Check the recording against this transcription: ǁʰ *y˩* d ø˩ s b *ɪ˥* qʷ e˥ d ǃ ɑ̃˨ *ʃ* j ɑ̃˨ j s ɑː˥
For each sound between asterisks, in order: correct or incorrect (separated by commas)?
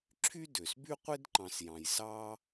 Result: incorrect, incorrect, incorrect